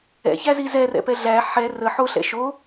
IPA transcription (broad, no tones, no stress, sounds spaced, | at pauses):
ɛ̰ ç æ z i z ɛ r ɛ̰ p ɛ ɮ æ ħ ɛ r ə ħ o ɬ ɛ̰ ʃ o